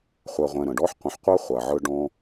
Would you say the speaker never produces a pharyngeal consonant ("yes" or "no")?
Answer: no